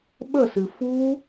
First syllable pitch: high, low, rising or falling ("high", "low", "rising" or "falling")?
falling